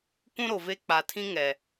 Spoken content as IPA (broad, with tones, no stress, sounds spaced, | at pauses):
kʷ ũ˦ ɾ o˨ v e˦ k͡p a˨ tʰ ĩ˦ ŋ ɛ˨